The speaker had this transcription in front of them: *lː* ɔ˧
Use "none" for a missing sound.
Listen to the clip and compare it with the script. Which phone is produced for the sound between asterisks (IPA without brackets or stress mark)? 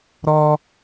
ɾ